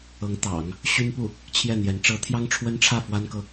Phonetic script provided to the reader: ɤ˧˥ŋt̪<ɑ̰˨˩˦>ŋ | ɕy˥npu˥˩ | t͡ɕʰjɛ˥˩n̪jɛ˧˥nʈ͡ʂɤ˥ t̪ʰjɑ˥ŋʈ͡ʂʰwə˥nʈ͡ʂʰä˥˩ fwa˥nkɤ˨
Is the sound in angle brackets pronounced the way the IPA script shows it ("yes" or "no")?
yes